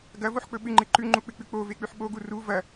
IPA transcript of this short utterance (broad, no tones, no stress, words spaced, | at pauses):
ɡɐvoħk͡pɵ ɓɨŋ͡ǃɨ ǃʉŋ͡ǃuk͡pɨk͡pʉ k͡povek͡pʉħ ɓoɡu ru vɐ